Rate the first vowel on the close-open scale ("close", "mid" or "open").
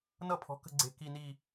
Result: mid